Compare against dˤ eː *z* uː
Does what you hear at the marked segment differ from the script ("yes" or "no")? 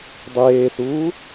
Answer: yes